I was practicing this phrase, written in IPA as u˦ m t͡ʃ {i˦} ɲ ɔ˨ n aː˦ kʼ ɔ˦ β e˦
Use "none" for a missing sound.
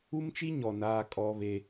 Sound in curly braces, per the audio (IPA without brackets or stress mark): i˦